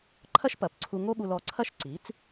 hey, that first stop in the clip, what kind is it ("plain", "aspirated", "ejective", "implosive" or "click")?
click